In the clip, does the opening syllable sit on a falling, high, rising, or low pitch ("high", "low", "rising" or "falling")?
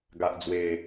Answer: low